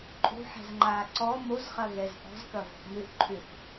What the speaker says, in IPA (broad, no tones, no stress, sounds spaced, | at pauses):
ǃʼ o̤ ħ ɛ̤ z ŋ͡ǃ aː ǀ ɔ m o z χ ɐ ɣ ɛ z ʔ ɔ̤ z k ɐ v ɔ̤ ʔ m ʏ ʔ ǃʰ ʏ θ